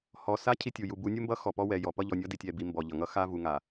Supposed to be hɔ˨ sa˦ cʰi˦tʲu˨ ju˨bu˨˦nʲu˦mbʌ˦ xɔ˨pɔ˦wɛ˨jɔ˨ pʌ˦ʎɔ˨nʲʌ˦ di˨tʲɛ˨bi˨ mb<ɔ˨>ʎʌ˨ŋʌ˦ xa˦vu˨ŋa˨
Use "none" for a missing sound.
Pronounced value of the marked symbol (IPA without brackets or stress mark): ɔ˨